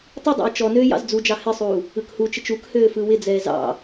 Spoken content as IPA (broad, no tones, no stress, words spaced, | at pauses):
tˤɯdˤɑ̰j t͡ʃɔnøːj ɑ̰zd͡zud͡ʒɑ hɪsˤuː | ɯkhut͡ʃɪt͡ʃ ukhøː fɯwɪd͡zɛː zɑ̰